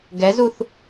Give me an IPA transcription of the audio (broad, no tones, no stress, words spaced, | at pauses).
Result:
ɡɛzuθ